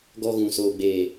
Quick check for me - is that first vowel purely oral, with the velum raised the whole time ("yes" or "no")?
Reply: yes